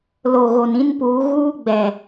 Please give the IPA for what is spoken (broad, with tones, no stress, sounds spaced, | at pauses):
l o˨ ɣ o˨ n ĩ˦ n p uː˨˦ ɣ uː˦ ɡ͡b ɛ˨